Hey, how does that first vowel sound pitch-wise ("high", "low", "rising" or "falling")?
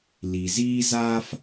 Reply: low